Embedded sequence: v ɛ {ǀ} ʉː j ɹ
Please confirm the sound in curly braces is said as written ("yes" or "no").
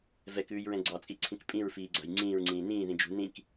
no